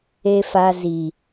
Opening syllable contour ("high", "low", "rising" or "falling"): low